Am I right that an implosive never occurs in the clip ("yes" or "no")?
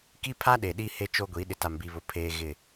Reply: no